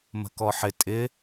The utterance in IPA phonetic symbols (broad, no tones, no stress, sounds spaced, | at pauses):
m ə̤ k ɔ ħ ɪ tʼ ɪ